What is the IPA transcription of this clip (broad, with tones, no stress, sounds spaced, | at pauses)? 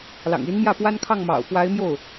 l ɑ̰˨˩ ŋ i˧˥ n m j ä˥˩ p w a˥ n kʰ ɑ˥˩ ŋ m ɑ̰˨˩ ʊ̯ p w a˧˥ ɪ̯ m j o˥˩ ʊ̯